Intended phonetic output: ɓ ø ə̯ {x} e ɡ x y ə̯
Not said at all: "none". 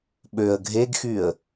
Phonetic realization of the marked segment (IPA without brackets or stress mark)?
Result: ɡʱ